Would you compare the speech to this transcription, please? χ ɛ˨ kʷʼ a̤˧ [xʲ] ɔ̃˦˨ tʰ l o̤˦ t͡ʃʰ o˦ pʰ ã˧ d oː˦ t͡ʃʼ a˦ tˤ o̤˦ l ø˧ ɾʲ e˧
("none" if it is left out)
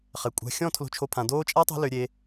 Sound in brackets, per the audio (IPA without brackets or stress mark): xʲ